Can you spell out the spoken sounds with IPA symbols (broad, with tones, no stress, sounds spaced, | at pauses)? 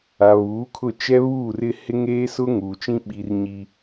a˨ β uː˨˦ kʰ ʊ˦˨ t͡ʃ ɛ˦ β uː˦˨ r ɪ˦ h ɪ˦ ŋ eː˦ s ʊ˦ ŋ uː˨ t͡ʃ ĩ˦ ɓ i˨ r ɲ i˦